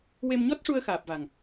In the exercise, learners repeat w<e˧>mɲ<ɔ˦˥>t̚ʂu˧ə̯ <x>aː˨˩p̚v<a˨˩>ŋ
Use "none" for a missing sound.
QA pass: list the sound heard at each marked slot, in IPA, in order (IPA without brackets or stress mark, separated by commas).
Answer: e˧, ɔ˦˥, x, a˨˩